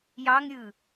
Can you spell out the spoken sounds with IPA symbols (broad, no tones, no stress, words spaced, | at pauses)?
jɑŋɾʲɯ